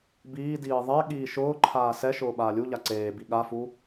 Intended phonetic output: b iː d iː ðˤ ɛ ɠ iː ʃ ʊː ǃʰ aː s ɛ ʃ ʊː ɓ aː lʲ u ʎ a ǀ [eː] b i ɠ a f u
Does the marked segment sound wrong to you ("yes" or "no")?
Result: no